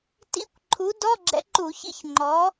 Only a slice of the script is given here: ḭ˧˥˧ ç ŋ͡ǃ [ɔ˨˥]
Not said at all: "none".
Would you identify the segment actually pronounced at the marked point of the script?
ɔ˨˥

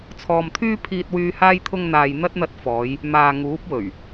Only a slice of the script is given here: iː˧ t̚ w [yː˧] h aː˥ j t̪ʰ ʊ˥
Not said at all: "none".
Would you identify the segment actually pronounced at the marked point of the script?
yː˧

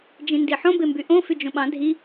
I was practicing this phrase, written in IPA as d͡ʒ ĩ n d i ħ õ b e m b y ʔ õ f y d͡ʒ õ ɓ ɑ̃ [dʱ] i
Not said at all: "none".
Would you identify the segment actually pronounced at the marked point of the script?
dʱ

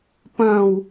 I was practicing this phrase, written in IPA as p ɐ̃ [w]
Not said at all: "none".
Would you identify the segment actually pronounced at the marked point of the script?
w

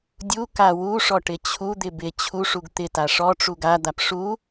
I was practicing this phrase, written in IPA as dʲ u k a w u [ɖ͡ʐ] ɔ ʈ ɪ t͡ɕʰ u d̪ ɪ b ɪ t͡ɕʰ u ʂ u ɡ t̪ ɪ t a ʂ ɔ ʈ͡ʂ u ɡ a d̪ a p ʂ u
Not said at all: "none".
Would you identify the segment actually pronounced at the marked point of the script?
ʂ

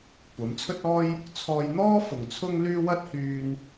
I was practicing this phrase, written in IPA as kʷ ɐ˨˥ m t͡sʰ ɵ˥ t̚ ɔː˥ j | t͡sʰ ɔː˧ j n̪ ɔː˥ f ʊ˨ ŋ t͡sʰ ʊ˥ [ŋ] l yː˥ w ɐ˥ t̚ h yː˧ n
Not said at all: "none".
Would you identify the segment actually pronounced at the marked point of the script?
ŋ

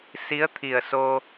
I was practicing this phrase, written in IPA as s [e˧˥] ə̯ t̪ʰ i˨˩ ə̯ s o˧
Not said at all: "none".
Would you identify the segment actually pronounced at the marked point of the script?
i˧˥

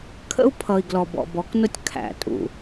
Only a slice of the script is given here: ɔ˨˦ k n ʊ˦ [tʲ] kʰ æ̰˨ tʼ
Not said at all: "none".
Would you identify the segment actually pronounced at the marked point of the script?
tʲ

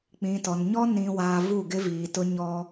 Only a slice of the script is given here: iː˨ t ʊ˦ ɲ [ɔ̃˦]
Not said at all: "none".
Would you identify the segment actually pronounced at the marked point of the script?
ɔ˦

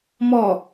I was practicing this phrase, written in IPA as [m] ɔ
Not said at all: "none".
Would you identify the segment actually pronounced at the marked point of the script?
m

